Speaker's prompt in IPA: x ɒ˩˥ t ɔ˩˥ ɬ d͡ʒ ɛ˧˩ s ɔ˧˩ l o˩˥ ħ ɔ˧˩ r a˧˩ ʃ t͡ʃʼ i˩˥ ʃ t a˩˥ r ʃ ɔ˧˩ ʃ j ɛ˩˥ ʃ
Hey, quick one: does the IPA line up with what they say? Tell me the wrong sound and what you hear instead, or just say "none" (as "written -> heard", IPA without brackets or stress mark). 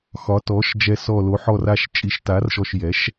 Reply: ɬ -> ʃ